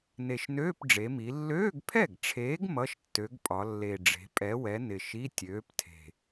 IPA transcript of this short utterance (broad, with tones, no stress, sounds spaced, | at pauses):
n e˨˩ ʃ n øː˧˥˧ p ɖ͡ʐ e˩˧ m i˩˧ lː øː˧˥˧ ɡ pʰ ɛ˥˩ ɡ ʈ͡ʂʰ eː˨˥ ɡ m ʌ˧˥˧ ʃ tː ø˨˥ ɡ pʼ ɒ˩˧ lː e˨˩ ɖ͡ʐ e̤˩˧ pʼ ɛ˨˥ w ɛ˨˥ n ɪ˨˩ ʃ i˧˥˧ tʲ øː˨˥ p tʰ e̤˨˩